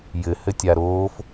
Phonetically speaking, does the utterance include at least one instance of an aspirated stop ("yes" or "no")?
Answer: no